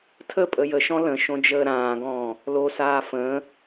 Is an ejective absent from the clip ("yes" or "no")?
no